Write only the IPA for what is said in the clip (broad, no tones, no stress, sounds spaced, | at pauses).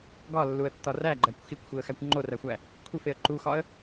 ɡ ɒ lː u ə̯ tː ɒ r æ ɡ͡ǃ æ kʷ x i kʷ xʷ i ə̯ x æ kʷ ŋ͡ǃ o r æ xʷ æ | kʷʰ i f e ə̯ ǃ u x ɒ ə̯